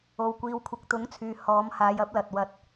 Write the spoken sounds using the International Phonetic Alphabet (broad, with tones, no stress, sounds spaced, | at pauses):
o˨ w kʷ iː˨ w kʷʰ ɪ˨ k̚ t̪ ʊ˨˥ ŋ t͡sʰ yː˨ h ɔː˨˧ m h aː˨ j ɐ˨˥ p̚ l ɐ˨ t̚ w ɐ˧ t̚